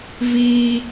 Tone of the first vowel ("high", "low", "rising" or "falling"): high